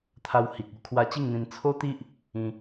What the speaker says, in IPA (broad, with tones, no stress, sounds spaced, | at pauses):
t̪ʰ a˧ w h i˨ k̚ u˥˧ kʰ w a˧ t͡ɕ i˥˧ ŋ n̪ ĩ˧ n t͡sʰ o˦ t̪ i˦ ʔ | ĩ˦